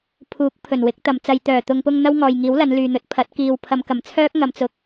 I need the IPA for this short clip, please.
pʰ uː˨˥ k̚ pʰ ɵ˨˩ n w ɪ˨˥ k̚ t̪ ɐ˨ m t͡s ɐ˨ j t̪ œː˨˩ t̪ ʊ˨ ŋ p ʊ˧ ŋ n̪ ɐ˥ w ŋ ɔː˨ j ŋ iː˨˥ w l ɐ˨˧ n l yː˨ n̪ ɵ˨˥ t̚ pʰ ɐ˨˥ t̚ k iː˨ w pʰ ɐ˨˧ m k ɐ˨˩ m t͡sʰ œː˥ k̚ ŋ ɐ˨ m t͡s ʊ˨˥ k̚

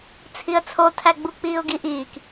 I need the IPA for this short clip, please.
t͡sʰ i ə̯ t͡sʰ o tʰ æ ɡ͡b u k͡p iː ʊ̯ ɡ i ʔ iː k

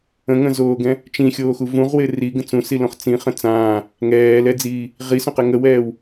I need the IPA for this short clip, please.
ə̃ ŋ ə̃ z oː ɡ ɛ̃ | t͡ʃ ĩ xʲ oː x u v ũ ʁ w ɪ r i ɡ ə̃ t͡s ũ s i l õ χ t͡s ĩ χ ə̃ t͡s ãː | ŋ ɛː l ɛ d͡z iː | ʁ i s õ q ɛ ŋ ə w ɛː w

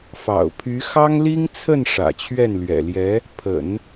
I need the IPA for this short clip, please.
f ɑ̰˨˩ ʊ̯ pʰ y˧˥ x ɑ˥ ŋ l i˥ ŋ t͡sʰ ə˥˩ n ʂ ä̰˨˩ t͡ɕʰ ɥ ɛ˥˩ n l ɥ ɛ̰˨˩ l j ɛ˧˥ | pʰ ə̰˨˩˦ n

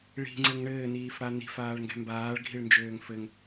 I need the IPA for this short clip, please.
ɭ i̤ ŋ͡ǀ ɘ ŋ ɳ ɘː n iː f ɽ a n i̤ f aː ɭ ŋ ɡ ɛ̤ m b aː ɭ ɡʱ i ɭ n d͡ʒ øː ŋ f ɘ ŋ

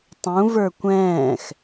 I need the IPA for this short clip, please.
tˤ ũ v ə˞ kʷ ɛ̃ː x

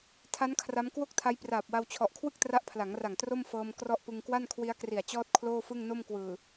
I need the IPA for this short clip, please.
tʰ a˦˥ n kʰ r a˦˥ m k w o˥˩ k̚ tʰ a˦˥ j p r aː˨˩ p̚ w a˧ w t͡ɕʰ ɔ˨˩ ʔ kʰ w ɯ˥˩ k̚ t r a˦˥ ʔ pʰ l a˩˦ ŋ r a˨˩ ŋ t r o˥˩ m f ɤː˧ m k r ɔ˥˩ ʔ p ɯ˧ ŋ k w a˥˩ n kʰ w i˦˥ a̯ k r i˨˩ a̯ t͡ɕ ɔː˥˩ t̚ kʰ l oː˥˩ f ɯ˥˩ ŋ n o˥˩ m k w ɯː˨˩

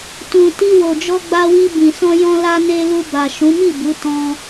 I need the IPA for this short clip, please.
t ũ˨ t i˧ w o˨ d͡ʒ ɔ˧ ɡ͡b a˧ w i˧ b ĩ˨ s ɔ̃˧ j ɔ̃˧ l a˧ n e˧ l u˧ b a˨ ʃ ũ˨˦ m i˦˨ b u˨˦ t ɔ̃˧

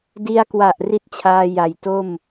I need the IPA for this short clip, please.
d i˧ a̯ k w a˨˩ ʔ r i˥˩ t̚ t͡ɕʰ aː˧ j a˨˩ j t o˥˩ m

